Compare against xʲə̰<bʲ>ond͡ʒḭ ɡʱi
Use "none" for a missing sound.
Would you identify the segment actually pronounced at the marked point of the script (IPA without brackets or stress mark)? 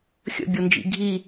bʲ